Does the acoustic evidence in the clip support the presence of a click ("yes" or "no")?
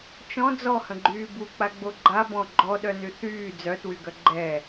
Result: yes